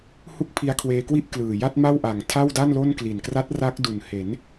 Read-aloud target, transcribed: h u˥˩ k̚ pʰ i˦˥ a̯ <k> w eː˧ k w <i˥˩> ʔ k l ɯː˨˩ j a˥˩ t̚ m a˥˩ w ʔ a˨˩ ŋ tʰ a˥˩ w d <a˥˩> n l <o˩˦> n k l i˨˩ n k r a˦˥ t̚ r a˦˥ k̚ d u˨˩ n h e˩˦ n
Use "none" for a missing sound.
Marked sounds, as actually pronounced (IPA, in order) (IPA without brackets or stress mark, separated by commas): kʰ, i˥˩, a˥˩, o˥˩